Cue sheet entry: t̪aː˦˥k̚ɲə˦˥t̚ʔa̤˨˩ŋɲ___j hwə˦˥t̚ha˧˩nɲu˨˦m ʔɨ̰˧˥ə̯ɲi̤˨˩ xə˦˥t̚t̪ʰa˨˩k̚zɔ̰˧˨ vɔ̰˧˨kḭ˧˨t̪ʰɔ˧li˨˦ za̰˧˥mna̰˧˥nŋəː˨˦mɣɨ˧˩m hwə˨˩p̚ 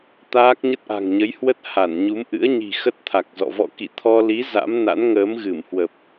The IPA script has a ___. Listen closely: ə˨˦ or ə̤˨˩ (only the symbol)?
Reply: ə˨˦